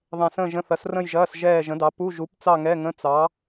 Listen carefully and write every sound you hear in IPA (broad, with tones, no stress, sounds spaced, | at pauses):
ðˤ ɛ̃˧˩ s ə̃ː˥˧ ʒ ə̃˧˥˧ θ ɐ˨˥ s r ə̃˥˧ j ʒ ɐː˧˥˧ s ʒ ɛː˥˧ ʒ ə̃˨˥ d ɑ˨˥ p u˧˥˧ ʒ u˨˥ p t͡s ɑ˥˧ ŋ ɛ˧˥˧ ŋ ə̃˧˥˧ t͡s ɑ˨˥